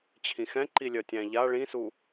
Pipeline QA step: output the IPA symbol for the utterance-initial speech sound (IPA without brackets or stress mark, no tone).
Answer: t͡ɕʰ